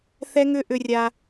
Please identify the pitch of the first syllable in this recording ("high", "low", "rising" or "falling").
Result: high